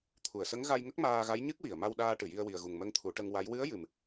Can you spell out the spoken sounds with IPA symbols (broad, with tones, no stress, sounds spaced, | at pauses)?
t̪ʰ u˨˩˨ ə̯ s ə˧˥ ŋ ɣ a˧ j ŋ ə˦˥ k̚ m aː˧ ɣ a˧˥ j ɲ ɨ˦˥ k̚ w i˨˩˨ ə̯ m a˧ w ɗ aː˧ ʈ ɨ˨˩˨ j i˧ ə̯ w i˨˩ ə̯ ɣ u˨˩ ŋ m ə˧ ŋ t̪ʰ u˨˩˦ ʈ ə˧ ŋ w a˧˥ j w ɨ˧˥ ə̯ j ɨ˨˩ m